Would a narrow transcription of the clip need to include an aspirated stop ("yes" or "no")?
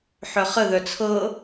yes